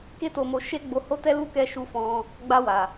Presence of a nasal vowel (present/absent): present